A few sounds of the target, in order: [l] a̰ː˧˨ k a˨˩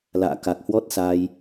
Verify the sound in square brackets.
correct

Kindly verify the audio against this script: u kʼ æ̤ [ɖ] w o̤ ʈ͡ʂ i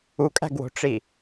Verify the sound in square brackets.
incorrect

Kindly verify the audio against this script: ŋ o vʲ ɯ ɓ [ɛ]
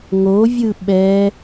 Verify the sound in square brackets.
correct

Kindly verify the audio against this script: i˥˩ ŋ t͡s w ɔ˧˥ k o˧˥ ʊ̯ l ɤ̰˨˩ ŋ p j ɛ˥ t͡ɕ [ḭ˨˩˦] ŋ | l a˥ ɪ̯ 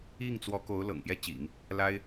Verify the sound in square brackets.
correct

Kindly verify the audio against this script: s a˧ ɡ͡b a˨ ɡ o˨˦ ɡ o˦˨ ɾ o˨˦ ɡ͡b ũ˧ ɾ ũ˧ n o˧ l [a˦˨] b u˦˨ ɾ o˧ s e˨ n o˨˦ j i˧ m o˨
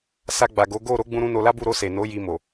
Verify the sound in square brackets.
incorrect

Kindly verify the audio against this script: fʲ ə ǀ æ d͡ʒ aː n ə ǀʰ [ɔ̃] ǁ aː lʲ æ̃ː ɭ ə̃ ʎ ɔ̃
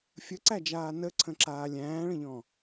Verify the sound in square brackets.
incorrect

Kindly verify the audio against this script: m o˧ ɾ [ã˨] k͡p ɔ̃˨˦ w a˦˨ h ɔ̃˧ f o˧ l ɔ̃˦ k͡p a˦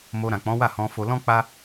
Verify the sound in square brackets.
correct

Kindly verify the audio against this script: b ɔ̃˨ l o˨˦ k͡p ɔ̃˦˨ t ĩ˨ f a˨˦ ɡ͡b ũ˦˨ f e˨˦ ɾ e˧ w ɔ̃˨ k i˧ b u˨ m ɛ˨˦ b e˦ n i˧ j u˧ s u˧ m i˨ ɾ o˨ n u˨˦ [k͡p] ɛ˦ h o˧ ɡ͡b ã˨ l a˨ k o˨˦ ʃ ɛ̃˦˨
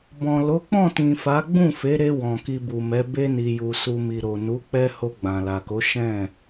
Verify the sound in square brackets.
correct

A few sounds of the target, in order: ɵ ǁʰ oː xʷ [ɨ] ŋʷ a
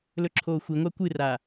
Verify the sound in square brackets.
incorrect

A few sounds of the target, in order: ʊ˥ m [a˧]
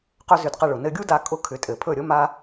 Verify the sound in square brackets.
incorrect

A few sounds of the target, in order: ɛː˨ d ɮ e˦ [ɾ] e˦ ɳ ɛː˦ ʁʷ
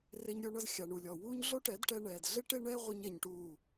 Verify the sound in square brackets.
incorrect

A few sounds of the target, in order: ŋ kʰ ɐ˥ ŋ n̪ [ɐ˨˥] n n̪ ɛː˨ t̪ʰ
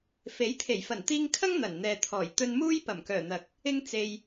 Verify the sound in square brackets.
incorrect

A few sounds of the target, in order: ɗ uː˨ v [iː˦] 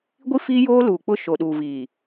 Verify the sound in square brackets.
incorrect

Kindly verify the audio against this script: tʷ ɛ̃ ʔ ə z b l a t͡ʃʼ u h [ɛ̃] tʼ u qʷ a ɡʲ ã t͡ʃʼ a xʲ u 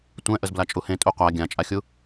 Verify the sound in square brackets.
incorrect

